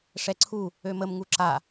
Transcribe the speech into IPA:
ʂɛǀʰu | øməm ŋuǁa

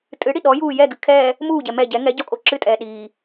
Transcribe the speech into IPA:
tʼɨɽi ɗɔjuː jɛɡɨ kʰɛː | muːɟɛ mɛ ɟɛ ŋɛ ɟɔkʼo ǁɨtʼɛː ɗiː

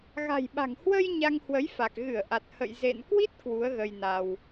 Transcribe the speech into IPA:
ɣa̤˨˩jɓa̤˨˩ŋhwə˧j ɲa˧ŋhwə˨˦jfa˨˩k̚ ɣɨ˧˩ə̯ʔa˨˩t̚hə̰˧˨j zḛ˧˨nkwi˦˥t̚ kwu˨˦ə̯ɣə˧jna˧w

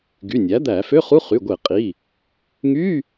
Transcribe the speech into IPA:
ɡy˩˧˩nʲæ˩˥d̪æ˧˩˧ fø˧˥˧χu˧˥˧ χy˩˧˩ɡʷe˧˩˧qʼi˩˧˩ | ŋy˧˥˧

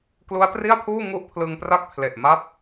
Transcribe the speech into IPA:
klu˦˥a̯tri˥˩a̯pʰuː˥˩ ŋu˥˩ʔpʰlɯ˧ŋ pra˥˩k̚pʰle˨˩ʔ ma˥˩p̚

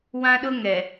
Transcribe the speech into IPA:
wã˦ɗʊ˦ŋɛ˨

